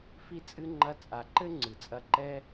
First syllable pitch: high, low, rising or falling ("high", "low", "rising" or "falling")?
high